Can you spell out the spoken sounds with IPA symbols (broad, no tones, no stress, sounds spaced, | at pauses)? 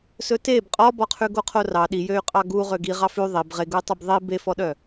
s ɵ t e b qʼ ɔ b ɔ qʰ ʉ ɡ o qʰ o r ɑ ɗ i j ø y̯ qʼ ɑ ɡ u ʁ ø ɡ i ʁ ɑ f ʉ ðˤ i b ʁ e ɡ u i̯ tˤ ø b ðˤ i b e f ɔ ɗ œ